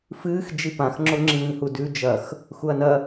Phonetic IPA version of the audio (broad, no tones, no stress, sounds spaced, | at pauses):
f ɨː x d͡ʒ i p ã x ŋ͡ǁ o ŋ͡ǁ ĩː h u d ʉ d͡ʒ ɐ x | x u ɐ̯ n ɐ